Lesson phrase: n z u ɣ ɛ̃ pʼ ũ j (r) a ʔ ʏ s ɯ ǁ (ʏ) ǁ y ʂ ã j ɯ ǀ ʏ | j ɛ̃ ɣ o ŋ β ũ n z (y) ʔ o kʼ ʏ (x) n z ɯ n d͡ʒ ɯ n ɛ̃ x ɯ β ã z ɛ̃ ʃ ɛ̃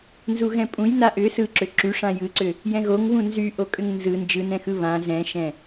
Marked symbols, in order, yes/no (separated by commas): no, yes, yes, no